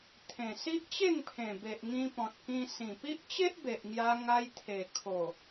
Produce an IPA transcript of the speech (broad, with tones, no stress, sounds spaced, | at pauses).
t̪ʰ ẽ˨˩ s i˦ ʔ t͡ɕ e˥˧ ŋ pʰ ẽ˨˩ b e˨ ʔ ŋ ĩ˧ p ɔ̃˨ t̚ k ĩ˧ s ĩ˨˩ p i˦ ʔ t͡ɕ e˦ ʔ b e˨ ʔ ŋ j a˧ ŋ a˧ j t̪ʰ e˨˩ kʰ o˨˩